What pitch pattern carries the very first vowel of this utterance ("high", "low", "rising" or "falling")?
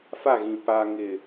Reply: falling